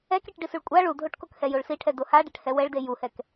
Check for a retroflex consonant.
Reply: present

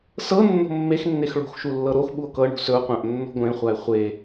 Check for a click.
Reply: absent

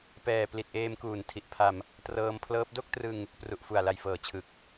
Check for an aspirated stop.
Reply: present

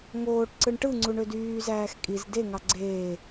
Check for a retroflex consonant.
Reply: present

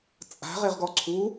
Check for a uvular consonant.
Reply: present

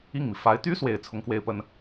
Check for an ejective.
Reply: absent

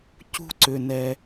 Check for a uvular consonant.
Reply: absent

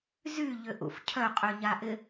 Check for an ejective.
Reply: present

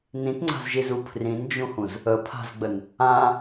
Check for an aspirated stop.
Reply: present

